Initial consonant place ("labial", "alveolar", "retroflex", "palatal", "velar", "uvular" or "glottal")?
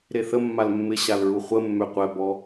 alveolar